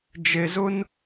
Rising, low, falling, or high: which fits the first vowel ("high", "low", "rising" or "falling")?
low